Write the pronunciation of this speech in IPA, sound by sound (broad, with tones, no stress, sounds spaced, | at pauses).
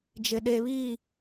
d͡ʒ ɪ˨ ɗ e˨ β iː˦˨